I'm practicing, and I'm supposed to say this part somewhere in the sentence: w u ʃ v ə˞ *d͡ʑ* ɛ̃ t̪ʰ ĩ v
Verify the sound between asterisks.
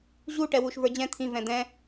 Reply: correct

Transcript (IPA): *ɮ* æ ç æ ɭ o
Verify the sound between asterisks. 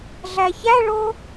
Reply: correct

